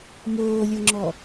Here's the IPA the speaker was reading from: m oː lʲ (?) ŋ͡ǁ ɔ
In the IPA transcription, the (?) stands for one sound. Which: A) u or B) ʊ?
B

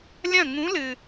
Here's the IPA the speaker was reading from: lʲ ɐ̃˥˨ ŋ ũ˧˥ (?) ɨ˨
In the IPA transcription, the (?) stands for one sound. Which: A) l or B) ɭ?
A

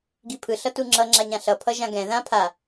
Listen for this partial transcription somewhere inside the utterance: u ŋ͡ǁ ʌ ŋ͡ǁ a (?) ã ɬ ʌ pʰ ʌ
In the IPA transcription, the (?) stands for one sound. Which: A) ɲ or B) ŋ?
A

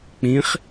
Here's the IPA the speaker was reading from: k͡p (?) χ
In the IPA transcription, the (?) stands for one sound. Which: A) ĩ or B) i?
A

